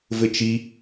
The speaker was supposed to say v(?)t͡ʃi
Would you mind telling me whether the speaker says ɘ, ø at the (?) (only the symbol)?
ɘ